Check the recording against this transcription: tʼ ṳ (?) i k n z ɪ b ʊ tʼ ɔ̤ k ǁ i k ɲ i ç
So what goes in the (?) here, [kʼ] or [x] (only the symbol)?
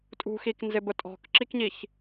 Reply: x